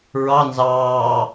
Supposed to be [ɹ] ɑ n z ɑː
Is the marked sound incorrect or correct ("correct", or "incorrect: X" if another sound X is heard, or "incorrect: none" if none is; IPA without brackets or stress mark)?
correct